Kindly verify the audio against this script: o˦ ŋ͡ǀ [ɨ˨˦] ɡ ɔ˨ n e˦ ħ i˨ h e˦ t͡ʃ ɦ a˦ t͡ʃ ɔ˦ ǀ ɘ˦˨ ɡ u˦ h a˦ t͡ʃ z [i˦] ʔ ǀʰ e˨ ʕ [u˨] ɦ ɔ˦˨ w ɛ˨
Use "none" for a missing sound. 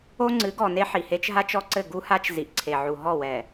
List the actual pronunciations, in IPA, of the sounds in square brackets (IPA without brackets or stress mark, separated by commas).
ɨ˨˦, i˨, u˨